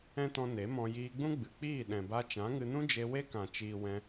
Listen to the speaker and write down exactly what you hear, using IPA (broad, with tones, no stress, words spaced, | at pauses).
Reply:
ɛ̃˦tɔ̃˧ ne˨˦mɔ̃˧ jiː˧ɡ͡bũ˦ɡ͡bɨ˨k͡piː˦˨ ɗɛ̃˨ba˧ t͡ʃã˨˦ŋɨ˧nũ˦d͡ʒe˧ we˦kã˨ t͡ʃiː˨ wɛ̃˧